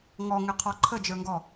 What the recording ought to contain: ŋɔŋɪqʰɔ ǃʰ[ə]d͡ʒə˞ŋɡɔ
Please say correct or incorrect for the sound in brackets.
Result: correct